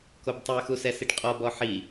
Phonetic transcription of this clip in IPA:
k o b tˤ ɛ x u s ɛ s i ʈ qʼ ɔ b ɔ ħ i

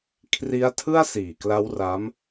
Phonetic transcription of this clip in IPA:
kʰ r i˦˥ a̯ tʰ ɯ˥˩ a̯ s iː˨˩ k l a˦˥ w r a˦˥ m

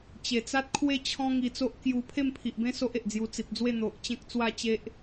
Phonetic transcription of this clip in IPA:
t͡ɕ e˨˩ t͡s a˦ t̚ kʰ w e˥˧ t͡ɕʰ ɔ̃˦ ŋ i˧ t͡s o˦ ʔ k j u˧ pʰ e˥˧ m pʰ i˨ ʔ b ẽ˦ s o˦ ʔ e˨ ʔ d͡z j u˧ t͡s i˨ p̚ d͡z w e˥˧ n̪ o˨ ʔ t͡ɕ ẽ˦ k̚ t͡s w a˥˧ t͡ɕ e˦ ʔ

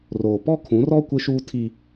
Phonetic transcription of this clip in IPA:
r oː˨ p ɔ˦ kʰ ũ˨˦ r ɔ˦ kʷ ɪ˦ ʃ uː˦ tʰ i˦

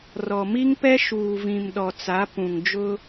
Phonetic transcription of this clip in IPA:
r ɔ˨ m i˦ ŋ p ɛ˦ ʃ uː˨ v ĩ˨ m ɗ ɔ˨ t͡s a˨˦ p ũ˨ ŋ d͡ʒ ʊ˦

